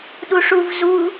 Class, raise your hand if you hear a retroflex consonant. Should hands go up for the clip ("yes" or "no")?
yes